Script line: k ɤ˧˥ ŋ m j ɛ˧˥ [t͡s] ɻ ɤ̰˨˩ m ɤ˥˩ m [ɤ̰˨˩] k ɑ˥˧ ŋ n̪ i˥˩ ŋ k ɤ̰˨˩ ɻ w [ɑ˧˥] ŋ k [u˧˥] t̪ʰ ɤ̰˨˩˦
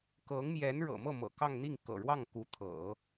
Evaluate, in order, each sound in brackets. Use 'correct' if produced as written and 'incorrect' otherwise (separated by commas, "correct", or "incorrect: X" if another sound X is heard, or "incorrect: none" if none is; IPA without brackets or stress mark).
incorrect: n, correct, incorrect: ɑ˥˩, correct